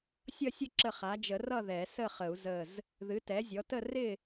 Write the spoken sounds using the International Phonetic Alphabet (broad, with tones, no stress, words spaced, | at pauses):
sʲʌ˥˨sʲə˥˨ ǁə˥˨ χa˩˥d͡ʒə˨˩˦rʌ˥˨ ðɛ˨˩˦ sə˥˨χə˨˩˦u̯ zə˧˩z | ðɨ˩˥tɛ˩˥zʲɔ˩˥tə˥˨ rɪ˥˨